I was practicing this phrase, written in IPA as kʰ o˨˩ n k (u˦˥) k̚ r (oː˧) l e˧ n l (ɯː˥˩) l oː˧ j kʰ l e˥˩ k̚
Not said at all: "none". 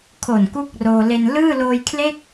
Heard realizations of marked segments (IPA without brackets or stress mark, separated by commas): u˥˩, oː˧, ɯː˥˩